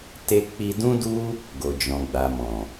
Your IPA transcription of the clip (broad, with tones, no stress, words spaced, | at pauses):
te˦ k͡pi˧dũ˦du˦ | ɡo˨d͡ʒɔ̃˨ɡ͡ba˨mɔ̃˨